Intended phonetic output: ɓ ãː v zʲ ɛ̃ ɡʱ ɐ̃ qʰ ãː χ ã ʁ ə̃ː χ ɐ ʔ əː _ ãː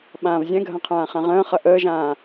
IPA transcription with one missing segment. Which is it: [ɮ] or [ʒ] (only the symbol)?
ʒ